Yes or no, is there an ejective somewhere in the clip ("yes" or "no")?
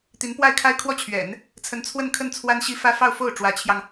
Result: no